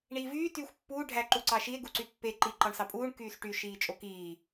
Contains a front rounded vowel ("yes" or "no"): yes